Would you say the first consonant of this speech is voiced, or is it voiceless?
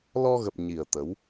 voiced